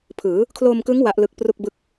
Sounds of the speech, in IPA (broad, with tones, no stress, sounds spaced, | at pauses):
pʰ ɯː˩˦ | kʰ l oː˧ m k ɯ˦˥ ŋ w a˦˥ ʔ l ɯ˦˥ k̚ p r u˥˩ k̚ b ɯ˦˥ k̚